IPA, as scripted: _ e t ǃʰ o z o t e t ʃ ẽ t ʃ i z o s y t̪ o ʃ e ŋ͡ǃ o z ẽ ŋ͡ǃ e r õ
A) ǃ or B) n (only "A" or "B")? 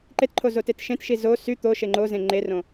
A